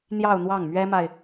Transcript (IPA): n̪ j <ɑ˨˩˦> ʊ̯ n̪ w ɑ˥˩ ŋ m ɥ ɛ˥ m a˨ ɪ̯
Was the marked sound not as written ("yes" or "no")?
yes